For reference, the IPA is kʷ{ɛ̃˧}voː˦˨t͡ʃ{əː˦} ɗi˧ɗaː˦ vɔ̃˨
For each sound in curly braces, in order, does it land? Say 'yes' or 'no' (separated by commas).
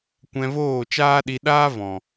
yes, no